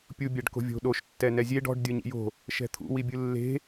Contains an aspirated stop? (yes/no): yes